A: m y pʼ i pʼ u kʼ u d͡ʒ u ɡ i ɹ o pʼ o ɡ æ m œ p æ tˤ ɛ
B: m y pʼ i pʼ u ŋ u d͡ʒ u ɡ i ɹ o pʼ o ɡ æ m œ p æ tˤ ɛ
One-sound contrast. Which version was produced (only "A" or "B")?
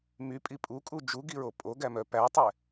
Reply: A